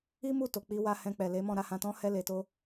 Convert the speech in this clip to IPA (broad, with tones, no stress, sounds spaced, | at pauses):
i˦ m u˦˨ t o˨ k͡p i˨˦ w a˧ h ɛ̃˧ k͡p ɛ˨ l e˨˦ m ɔ̃˦˨ ɾ a˨˦ h ã˧ t ɔ̃˦ h ɛ˦ l e˧ t o˦